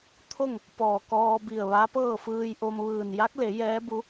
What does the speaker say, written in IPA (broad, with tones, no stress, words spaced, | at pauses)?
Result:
t̪ʰo˥˨ŋ | pɔː˧˩kɔː˧bi˧˩ə̯ ʋa˧˥pɤː˥˨fɯː˧jʔo˧m ʋɯː˧˩n ja˧˥k̚le˩˧ jɛː˧˥bu˧˥